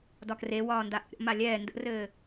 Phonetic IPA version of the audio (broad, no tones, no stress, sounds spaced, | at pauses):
d ɒ k r e w ɒː n d a ʔ ə̰ ɾʲ ɔ̰ m a lʲ ɛː n d ə̰ r ɘː